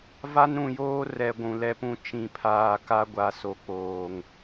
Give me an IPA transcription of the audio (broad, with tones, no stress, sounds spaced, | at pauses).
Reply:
v a˦ n ɾ ũ˨ j oː˦ r ɛ˨ ɡʷ ũ˨ l ɛ˦ p ũ˦ t͡ʃ ĩ˨ pʰ aː˨ k a˦ ɡʷ a˨ s o˨ k͡p oː˨ ŋ